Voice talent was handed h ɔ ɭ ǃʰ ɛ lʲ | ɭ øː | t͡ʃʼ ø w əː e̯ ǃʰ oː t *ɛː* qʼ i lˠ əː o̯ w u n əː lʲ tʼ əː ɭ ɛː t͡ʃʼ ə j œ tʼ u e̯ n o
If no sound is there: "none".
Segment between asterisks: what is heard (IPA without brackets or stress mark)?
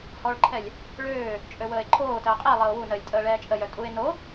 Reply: əː